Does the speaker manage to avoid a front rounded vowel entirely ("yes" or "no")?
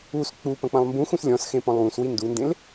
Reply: yes